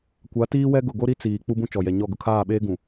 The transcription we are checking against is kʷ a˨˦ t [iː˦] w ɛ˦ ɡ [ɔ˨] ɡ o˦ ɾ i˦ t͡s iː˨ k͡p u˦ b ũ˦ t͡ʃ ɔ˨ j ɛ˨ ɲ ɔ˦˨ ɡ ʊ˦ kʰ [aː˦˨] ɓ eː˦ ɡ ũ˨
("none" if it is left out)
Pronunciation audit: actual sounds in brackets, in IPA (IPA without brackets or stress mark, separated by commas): iː˦, ʊ˨, aː˦˨